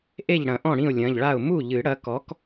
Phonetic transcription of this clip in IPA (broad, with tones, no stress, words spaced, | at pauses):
ʔe˥˩ʎɽɐ̃˨˩˦ʔɔ̃˥˩ ɽĩ˥˩ʊ̯lʲɐ̃˩˧˩ʎɭa˥˩ʊ̯ mu˥˩ʎɨ˨˩˦ɽɐ˨˥kɔ˨˥k